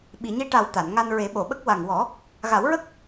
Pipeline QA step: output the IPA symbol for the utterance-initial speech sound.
ɓ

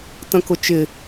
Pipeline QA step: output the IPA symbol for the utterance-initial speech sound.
t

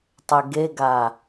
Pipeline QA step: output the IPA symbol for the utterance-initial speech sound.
tˤ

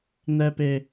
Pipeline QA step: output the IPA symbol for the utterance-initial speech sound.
n̪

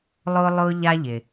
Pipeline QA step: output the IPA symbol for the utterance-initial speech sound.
lˠ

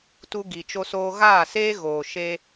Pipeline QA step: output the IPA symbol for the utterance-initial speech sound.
t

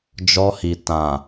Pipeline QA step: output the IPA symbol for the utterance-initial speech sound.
d͡ʒ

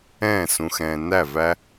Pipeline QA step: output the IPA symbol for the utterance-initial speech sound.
ɛ̃ː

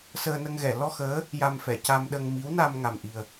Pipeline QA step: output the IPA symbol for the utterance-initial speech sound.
s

